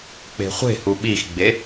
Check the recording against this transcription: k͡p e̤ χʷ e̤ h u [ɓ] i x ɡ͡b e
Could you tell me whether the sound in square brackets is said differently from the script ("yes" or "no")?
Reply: no